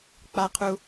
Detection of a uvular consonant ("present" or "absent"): present